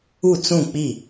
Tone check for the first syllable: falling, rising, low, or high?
falling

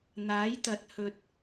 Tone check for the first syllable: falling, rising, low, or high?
rising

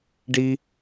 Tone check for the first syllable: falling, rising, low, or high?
high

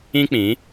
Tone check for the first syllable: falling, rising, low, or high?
high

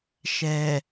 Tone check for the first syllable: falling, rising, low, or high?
low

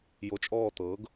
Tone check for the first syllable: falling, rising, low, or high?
rising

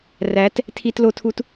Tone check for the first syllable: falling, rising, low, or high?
rising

